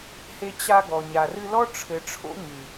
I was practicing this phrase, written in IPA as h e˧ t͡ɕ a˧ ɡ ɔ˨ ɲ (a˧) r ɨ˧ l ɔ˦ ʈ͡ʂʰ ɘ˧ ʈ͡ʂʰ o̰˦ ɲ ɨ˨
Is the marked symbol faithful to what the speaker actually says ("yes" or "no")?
no